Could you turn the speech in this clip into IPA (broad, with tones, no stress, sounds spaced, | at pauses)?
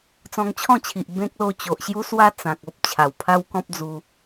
t͡s ɔ̃˧ ŋ t͡ɕʰ ɔ̃˥˧ t͡ɕʰ i˨ ʔ b ẽ˦ k̚ l o˥˧ t͡ɕ o˨ ʔ ɕ j u˦ s w a˦ t͡s ã˨ k̚ o˦ p̚ t͡ɕʰ a˨˩ w pʰ a˦ w k ɔ̃˦ p̚ d͡z u˧